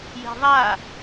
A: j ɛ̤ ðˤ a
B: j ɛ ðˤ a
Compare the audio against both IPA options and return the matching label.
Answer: A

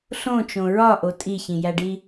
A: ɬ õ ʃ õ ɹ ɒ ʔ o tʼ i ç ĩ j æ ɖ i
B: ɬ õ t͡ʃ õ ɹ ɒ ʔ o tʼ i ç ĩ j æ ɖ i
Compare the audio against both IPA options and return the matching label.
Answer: B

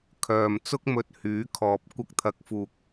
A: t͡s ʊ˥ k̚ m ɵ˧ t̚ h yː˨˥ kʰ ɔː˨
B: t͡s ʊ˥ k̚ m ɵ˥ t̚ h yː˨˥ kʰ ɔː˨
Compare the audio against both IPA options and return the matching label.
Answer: A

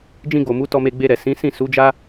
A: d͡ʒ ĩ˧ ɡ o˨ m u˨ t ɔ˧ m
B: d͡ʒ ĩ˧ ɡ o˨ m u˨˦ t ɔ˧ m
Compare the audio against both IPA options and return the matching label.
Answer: B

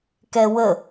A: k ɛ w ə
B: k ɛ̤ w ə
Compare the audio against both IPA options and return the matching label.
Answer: A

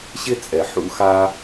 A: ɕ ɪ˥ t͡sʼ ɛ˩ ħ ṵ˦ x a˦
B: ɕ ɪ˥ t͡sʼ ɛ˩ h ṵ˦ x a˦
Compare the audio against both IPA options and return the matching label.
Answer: A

